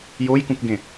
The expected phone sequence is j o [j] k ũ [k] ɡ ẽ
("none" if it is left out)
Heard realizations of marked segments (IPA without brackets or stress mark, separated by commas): j, k